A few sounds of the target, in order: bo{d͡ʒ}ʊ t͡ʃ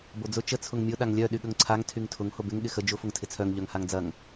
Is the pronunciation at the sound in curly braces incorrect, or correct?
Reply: incorrect